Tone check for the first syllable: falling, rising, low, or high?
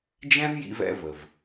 high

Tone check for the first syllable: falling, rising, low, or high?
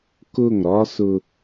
falling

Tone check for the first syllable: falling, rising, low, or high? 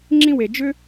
high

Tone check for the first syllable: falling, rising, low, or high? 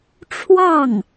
falling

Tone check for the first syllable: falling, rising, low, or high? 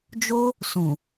high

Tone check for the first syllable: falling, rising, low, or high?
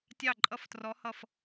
falling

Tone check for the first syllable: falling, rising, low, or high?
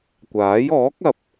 rising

